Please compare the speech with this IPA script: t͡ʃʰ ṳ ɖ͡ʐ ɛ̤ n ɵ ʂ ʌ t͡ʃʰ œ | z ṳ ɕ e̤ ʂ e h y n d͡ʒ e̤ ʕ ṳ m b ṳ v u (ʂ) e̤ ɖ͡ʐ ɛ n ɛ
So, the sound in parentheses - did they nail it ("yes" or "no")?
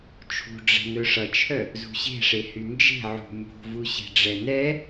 no